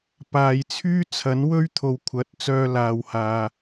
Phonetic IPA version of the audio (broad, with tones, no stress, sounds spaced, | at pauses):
p aː˨ j t͡sʰ yː˥ t͡sʰ ɐ˨˥ n w ɵ˥ ɥ t̪ʰ o˨ w kʷʰ ɐ˨˥ t̚ t͡s œː˧ l aː˨ w h aː˨